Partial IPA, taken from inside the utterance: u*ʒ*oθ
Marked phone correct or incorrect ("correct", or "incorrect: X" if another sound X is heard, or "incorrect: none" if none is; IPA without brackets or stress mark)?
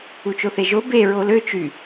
incorrect: t͡ʃ